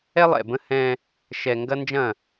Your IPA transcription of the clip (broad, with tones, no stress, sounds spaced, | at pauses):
ɛ˦ lˠ ɛ̰˨ b ə̃˦ h ɛ̃ː˦ | ʃ ɛ˨ ŋ ɡ ɐ˦ n d͡ʒ ɐ̃˦˨